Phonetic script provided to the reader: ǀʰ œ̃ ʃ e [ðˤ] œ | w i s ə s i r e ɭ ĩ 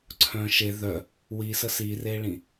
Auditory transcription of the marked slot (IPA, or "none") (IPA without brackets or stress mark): ð